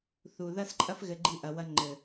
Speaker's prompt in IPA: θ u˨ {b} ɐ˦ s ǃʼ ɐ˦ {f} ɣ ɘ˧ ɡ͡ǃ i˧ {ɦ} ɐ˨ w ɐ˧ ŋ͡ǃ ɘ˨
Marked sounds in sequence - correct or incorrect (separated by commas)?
incorrect, correct, incorrect